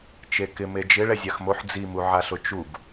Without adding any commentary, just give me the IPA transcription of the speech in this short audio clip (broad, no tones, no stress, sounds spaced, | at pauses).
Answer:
t͡ʃ e k ɪ m e d͡ʒ ɪ ɭ ɛ zʲ a x m o ħ d͡z i m u ʕ a ɬ ʊ t͡ʃ u ɡ